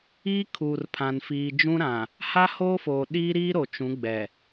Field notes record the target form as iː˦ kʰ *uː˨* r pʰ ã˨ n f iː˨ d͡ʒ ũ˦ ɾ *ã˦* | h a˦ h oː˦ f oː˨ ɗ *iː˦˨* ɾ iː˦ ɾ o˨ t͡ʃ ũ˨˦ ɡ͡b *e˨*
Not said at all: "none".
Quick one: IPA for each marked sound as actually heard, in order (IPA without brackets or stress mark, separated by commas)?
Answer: uː˨, ã˨, iː˦, ɛ˨